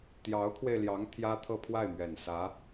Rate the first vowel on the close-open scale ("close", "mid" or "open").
open